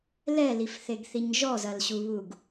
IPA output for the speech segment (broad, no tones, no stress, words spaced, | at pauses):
lɛlifθeɡθiɲ ʒɔzɐlɕuβuɡ